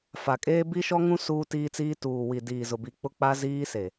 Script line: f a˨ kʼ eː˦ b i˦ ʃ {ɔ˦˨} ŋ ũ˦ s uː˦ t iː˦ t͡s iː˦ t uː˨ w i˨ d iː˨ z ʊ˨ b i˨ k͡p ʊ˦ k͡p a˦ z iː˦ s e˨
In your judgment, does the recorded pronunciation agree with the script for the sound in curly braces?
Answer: no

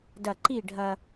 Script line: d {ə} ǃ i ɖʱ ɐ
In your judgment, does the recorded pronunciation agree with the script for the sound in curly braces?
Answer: no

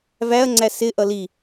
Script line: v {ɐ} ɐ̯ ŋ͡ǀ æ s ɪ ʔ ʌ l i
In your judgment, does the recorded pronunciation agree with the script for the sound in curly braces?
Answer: no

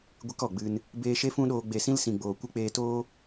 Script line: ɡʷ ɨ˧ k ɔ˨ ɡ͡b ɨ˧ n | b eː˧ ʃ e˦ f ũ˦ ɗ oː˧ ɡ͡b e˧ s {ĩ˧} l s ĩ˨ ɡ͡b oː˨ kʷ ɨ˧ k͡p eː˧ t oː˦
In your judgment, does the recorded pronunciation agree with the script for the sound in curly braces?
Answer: yes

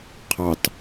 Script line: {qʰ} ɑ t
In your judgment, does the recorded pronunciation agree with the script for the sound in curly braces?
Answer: yes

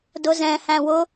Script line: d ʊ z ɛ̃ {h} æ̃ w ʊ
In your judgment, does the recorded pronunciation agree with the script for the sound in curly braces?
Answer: yes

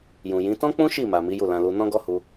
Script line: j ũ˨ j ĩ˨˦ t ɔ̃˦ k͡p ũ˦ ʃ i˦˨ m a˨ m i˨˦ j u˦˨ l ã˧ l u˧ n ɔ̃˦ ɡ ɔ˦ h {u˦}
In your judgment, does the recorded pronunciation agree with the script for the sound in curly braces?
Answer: no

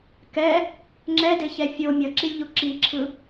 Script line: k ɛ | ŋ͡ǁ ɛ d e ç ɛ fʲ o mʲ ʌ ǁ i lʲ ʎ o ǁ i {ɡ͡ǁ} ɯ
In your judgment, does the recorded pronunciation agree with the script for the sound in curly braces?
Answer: no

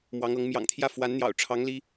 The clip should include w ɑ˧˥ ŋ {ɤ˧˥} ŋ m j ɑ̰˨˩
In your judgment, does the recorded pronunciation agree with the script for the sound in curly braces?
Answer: yes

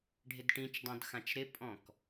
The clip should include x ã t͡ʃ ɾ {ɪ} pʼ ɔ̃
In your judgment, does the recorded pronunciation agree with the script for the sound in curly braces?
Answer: yes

